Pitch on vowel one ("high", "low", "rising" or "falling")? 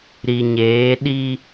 low